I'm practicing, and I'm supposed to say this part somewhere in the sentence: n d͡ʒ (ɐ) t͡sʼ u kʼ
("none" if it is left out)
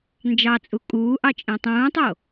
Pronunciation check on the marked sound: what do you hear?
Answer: ɑ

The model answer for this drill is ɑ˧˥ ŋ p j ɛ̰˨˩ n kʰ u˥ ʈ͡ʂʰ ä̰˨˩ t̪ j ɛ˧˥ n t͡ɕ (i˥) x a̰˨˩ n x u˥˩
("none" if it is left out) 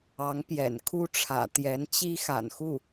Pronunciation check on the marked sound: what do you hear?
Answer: i˥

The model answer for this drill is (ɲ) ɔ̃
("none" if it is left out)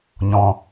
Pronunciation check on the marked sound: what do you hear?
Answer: ɲ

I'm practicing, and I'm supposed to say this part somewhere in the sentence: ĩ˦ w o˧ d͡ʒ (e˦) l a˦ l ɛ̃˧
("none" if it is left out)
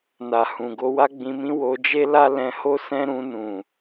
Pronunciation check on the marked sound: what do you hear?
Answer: e˦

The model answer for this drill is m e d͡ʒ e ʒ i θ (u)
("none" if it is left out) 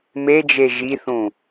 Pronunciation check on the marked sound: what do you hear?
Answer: ũ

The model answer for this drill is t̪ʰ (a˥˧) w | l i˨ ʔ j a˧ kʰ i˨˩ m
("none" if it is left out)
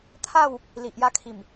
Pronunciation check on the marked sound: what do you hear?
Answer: a˥˧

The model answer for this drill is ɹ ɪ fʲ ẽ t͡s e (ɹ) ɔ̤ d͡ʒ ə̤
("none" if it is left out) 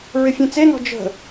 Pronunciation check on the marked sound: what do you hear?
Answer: n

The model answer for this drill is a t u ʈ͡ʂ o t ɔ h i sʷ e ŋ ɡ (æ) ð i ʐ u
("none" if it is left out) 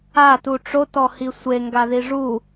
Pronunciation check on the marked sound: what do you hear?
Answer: a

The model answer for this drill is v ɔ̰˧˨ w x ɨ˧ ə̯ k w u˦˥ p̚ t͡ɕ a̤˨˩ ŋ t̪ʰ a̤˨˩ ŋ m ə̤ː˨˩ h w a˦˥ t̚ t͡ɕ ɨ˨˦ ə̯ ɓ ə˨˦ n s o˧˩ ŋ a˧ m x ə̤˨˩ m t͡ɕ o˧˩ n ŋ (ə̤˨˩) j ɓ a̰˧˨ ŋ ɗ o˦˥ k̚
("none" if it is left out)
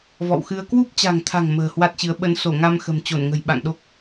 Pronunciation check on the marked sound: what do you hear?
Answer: ə̤˨˩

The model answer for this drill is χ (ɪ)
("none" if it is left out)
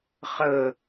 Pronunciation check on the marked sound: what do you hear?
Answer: ə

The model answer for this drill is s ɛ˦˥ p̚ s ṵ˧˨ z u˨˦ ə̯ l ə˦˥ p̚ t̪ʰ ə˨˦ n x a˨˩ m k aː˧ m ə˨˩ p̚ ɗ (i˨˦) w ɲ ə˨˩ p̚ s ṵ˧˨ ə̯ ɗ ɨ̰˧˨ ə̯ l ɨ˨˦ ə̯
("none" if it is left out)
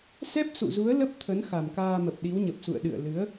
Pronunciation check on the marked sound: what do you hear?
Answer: i˨˦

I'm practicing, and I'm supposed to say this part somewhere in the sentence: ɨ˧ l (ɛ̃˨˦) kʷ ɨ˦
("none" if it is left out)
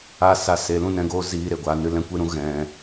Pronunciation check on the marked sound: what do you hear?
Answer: ɛ̃˦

